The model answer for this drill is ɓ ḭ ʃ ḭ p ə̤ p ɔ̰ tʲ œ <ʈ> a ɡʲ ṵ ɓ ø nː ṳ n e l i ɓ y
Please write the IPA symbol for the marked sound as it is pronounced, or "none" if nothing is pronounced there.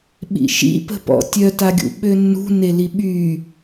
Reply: t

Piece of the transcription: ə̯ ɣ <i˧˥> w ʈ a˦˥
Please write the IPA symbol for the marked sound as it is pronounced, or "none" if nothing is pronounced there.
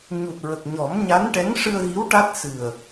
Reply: i˧˥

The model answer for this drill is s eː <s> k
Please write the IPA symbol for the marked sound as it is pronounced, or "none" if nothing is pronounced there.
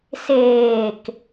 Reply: none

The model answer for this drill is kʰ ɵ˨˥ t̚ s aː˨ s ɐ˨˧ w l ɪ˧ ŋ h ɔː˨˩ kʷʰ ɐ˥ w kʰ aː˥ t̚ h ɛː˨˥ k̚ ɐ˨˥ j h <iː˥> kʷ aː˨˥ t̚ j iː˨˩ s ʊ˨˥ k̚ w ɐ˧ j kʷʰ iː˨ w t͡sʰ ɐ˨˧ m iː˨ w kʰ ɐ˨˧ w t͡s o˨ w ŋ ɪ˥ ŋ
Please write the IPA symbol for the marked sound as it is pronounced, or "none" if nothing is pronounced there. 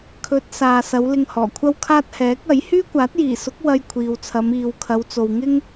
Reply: yː˥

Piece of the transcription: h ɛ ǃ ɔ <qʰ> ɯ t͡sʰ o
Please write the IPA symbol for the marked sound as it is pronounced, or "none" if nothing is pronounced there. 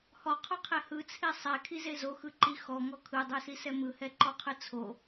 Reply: qʰ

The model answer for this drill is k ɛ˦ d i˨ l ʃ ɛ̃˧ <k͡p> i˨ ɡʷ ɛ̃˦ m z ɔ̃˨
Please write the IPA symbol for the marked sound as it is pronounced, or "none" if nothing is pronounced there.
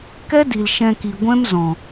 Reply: k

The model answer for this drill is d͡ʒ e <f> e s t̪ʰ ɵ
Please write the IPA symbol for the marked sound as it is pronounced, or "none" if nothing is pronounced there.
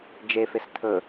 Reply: f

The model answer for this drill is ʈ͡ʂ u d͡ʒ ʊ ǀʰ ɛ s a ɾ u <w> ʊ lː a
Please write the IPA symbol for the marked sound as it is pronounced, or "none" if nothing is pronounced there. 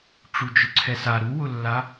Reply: w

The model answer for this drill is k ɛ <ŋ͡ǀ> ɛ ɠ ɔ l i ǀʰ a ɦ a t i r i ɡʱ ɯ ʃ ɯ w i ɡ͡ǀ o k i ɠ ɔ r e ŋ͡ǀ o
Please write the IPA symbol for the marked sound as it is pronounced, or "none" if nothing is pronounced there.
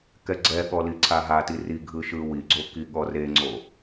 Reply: ɡ͡ǀ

